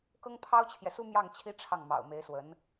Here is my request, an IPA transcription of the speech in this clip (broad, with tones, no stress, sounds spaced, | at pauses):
k ɤ˥ ŋ pʰ ɑ˥ ʊ̯ t͡ɕʰ j ɛ˨ s u˥ m j ɑ˥˩ ŋ t͡ɕʰ i˥ ʈ͡ʂʰ ɑ˥˩ ŋ m ɑ̰˨˩ ʊ̯ m e˧˥ ɪ̯ s w ə˧˥ n